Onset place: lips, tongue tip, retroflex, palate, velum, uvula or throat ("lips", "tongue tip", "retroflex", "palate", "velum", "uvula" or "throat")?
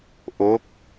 throat